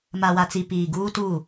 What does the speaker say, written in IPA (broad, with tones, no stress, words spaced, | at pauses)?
ma˨wa˨t͡si˨ piː˨ɡuː˦tuː˦˨